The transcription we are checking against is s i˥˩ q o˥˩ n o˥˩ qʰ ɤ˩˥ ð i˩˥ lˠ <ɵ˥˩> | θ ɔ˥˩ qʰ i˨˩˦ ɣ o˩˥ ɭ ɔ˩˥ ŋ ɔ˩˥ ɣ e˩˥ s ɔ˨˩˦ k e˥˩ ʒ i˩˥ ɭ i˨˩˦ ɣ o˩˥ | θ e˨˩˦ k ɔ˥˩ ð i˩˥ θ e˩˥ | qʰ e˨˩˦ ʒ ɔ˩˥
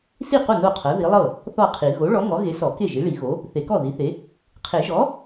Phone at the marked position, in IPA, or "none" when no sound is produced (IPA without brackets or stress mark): ɤ˥˩